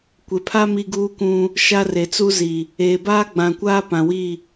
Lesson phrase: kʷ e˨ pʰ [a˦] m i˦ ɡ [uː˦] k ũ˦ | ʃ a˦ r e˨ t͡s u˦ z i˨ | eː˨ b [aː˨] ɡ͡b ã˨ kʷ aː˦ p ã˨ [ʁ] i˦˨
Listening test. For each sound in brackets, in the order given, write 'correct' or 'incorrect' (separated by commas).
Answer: correct, correct, incorrect, incorrect